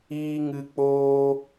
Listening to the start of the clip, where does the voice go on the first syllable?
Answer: high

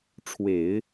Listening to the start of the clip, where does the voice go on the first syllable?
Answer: low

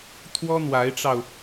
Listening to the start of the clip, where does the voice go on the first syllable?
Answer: high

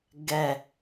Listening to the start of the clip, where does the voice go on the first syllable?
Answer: low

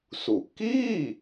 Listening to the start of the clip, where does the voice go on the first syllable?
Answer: low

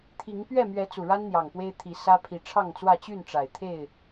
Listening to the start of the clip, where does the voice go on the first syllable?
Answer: rising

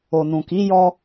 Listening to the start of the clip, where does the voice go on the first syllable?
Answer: low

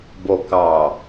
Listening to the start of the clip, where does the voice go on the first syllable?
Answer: low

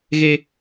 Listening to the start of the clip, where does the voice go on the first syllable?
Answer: high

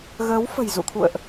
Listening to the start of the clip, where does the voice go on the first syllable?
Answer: rising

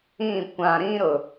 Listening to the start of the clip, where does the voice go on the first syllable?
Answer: falling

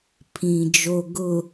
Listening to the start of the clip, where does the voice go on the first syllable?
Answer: low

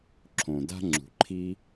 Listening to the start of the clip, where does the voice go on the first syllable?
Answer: low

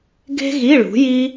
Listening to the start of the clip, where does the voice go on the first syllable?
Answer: high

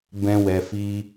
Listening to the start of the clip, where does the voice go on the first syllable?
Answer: high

